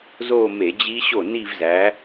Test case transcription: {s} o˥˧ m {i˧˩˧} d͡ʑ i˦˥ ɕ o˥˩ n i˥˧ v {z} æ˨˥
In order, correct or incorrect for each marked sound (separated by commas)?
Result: incorrect, incorrect, correct